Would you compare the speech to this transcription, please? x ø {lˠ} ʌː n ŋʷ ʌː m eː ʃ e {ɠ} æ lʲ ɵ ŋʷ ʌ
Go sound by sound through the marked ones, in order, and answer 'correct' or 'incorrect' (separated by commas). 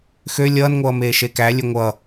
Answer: incorrect, incorrect